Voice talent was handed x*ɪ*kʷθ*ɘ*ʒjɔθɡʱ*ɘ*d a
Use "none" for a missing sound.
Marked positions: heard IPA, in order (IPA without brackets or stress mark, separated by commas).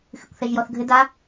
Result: ɨ, ɛ, ɘ